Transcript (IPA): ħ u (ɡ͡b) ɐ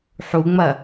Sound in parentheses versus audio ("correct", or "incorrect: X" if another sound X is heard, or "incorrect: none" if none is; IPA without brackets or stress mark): incorrect: ŋ͡m